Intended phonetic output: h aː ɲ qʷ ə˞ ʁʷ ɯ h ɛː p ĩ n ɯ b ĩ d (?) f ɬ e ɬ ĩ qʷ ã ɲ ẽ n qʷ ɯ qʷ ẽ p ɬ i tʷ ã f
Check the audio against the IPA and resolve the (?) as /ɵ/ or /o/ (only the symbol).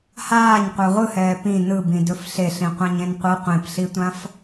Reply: ɵ